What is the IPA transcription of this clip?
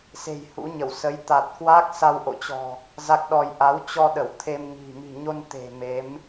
s e̤˨˩ j h ṵ˧˥ ɲ ə˧˩ w s ə˨˦ j t̪ a˨˩ t̚ k w a˦˥ k̚ s a˧ w ʔ o̰˧˨ t͡ɕ ɔ̤˨˩ | z a˦˥ k̚ ɗ ɔ˧ j ʔ a˨˦ w t͡ɕ ɔ˧ ɗ ə˧˩ w t̪ʰ e˧ m ŋ i̤˨˩ m i̤˨˩ ɲ o˧ n t̪ e̤˨˩ m e˨˦ m

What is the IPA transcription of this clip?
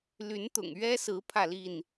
l y˨˦ n t̪ ʊ̰˨˩ ŋ ɥ ɛ˦ s ɹ̩˨˦ pʰ ä˥˨ l i˥˨ n

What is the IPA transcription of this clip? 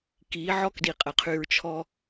k i˨˦ ʕ ɔ˦ k d i˨ qʼ ə˨ qʰ y˨ ɹ t͡ʃʰ ɔ˦

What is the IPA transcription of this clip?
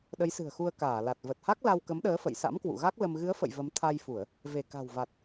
ɗ ə˨˦ j s ɨ̤˨˩ ə̯ x u˧ ə̯ k aː˧˩ l a˨˩ t̚ v ə˨˩ t̚ h a˦˥ k̚ l a˧ w k ə˨˦ m ɗ əː˨˦ f ə̰˧˨ j s a̰˧˥ m k w ṵ˧˨ ɣ a˦˥ k̚ l ə˧ m ɣ ɨ˨˦ ə̯ f ə̰˧˨ j v ə˨˦ m t̪ʰ a˧ j f u˧˩˨ ə̯ | v e˧˩ k a̤˨˩ w v a˨˩ t̚

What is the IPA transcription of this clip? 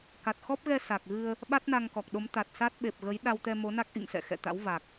k a˨˩ t̚ x ɔ˦˥ p̚ ɣ ɛ˧ s a˨˩ k̚ ɣ ɨ˧ ə̯ | ɓ a˦˥ t̚ n a˧ ŋ k ɔ˨˩ k̚ ɗ o˨˦ m t̪ a˨˩ t̚ s a˦˥ t̚ ɓ e˨˩ p̚ ɣ ə˨˦ j ɗ a˧ w t̪ ɛ˧ m o˨˦ n a˦˥ k̚ ʔ ḭ˧˨ ŋ s ɛ̰˧˨ x ɛ̰˧˨ t̪ a̰˧˥ w v a˨˩ k̚

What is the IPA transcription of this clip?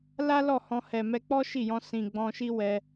l a˦ l ɔ˦˨ h ɔ̃˧ h ɛ˨ m ɛ˧ k͡p ɔ˦ ʃ i˦˨ j ɔ̃˧ s ĩ˨ ɡ͡b ɔ̃˧ ʃ i˦ w ɛ˧

